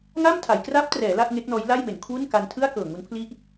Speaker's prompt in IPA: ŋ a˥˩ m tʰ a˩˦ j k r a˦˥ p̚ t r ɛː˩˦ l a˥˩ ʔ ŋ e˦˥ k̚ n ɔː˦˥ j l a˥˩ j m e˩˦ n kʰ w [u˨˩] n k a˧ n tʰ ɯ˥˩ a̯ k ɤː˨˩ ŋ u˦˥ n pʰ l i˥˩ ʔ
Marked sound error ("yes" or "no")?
yes